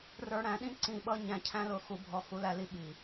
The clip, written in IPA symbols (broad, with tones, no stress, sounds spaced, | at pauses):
r ə˞˧ ɽ æ̃˧ ɗ ĩ˦ ǀ ĩ˦˨ ɓ ʌ˦ ɲ æ̃˧ cʰ æ̃˦ l ʊ˧ x u˧ bʱ ɔ˧ x u˧ l æ˧ l i˧ ɓ i˨